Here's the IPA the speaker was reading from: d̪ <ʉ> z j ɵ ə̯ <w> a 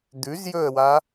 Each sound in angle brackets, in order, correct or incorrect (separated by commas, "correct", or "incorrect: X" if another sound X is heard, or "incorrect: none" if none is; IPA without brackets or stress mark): correct, correct